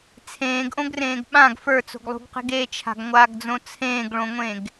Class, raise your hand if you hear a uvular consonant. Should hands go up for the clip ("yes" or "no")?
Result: yes